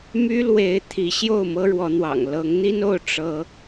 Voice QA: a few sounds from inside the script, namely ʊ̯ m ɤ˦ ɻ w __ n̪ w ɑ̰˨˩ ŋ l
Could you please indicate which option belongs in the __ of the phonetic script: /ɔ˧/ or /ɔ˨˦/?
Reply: ɔ˨˦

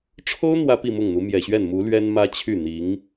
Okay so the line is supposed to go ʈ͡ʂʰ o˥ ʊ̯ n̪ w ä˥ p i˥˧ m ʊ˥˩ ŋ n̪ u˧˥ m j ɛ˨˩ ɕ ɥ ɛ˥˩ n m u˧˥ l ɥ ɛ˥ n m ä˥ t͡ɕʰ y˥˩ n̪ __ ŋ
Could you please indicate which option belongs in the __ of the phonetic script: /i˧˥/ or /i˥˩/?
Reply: i˧˥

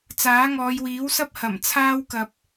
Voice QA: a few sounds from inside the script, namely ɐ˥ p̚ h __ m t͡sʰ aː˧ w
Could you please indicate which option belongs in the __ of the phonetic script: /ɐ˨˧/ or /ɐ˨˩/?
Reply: ɐ˨˩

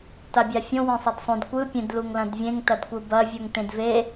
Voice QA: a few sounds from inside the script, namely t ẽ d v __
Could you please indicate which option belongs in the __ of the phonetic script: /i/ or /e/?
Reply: e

